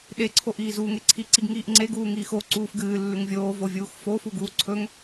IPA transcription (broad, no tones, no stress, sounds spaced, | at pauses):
ɗ e ǀʰ o ʔ iː z uː ŋ e ǀʰ i ǀ i ɡ ŋ iː ʔ ŋ͡ǀ e ɡ uː ŋ iː x o ǀ uː f ɡ ɨː lː ʉ ŋ vʲ oː v o vʲ uː x f o f u ɡ uː ǀʰ ɵ ŋ